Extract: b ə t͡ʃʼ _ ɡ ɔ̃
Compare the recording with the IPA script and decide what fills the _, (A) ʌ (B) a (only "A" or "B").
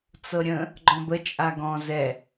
B